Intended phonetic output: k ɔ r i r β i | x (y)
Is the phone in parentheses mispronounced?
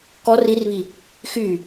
no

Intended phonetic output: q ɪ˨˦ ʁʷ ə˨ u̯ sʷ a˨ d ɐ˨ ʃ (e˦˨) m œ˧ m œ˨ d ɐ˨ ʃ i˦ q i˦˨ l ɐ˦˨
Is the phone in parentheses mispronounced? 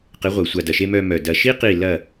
yes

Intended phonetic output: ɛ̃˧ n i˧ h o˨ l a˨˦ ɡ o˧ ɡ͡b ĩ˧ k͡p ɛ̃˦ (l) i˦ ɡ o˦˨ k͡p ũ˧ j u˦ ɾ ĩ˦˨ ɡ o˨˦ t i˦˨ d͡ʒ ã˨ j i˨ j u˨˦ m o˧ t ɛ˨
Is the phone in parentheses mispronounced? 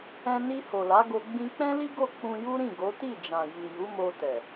no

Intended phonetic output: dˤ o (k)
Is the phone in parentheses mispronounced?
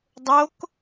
no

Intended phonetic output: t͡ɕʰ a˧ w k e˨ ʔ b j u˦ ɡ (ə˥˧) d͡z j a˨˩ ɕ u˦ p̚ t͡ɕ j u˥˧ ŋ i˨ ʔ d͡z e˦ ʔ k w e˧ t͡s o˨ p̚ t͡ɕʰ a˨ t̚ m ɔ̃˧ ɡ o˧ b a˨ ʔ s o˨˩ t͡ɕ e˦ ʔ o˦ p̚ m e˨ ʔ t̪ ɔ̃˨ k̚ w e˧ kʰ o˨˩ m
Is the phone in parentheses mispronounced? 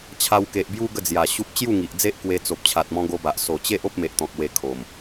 no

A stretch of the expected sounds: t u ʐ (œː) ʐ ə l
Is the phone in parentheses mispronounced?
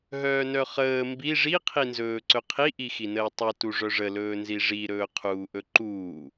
yes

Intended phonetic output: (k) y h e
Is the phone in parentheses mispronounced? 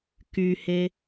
no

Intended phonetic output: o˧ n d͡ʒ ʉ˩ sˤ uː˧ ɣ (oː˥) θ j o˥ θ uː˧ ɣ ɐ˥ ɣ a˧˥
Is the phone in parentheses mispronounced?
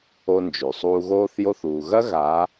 no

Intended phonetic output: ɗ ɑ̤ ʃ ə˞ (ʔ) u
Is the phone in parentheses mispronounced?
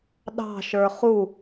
yes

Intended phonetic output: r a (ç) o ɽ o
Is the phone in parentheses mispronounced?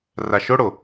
yes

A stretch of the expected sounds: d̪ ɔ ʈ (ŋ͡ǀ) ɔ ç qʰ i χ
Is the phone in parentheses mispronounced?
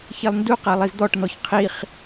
yes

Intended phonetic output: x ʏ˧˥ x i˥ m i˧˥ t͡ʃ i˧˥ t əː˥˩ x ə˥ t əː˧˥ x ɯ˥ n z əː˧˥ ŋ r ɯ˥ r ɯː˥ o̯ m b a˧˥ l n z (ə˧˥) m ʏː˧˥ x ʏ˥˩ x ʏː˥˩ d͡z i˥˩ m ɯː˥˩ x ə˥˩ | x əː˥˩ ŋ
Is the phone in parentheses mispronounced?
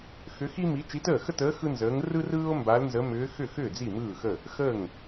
no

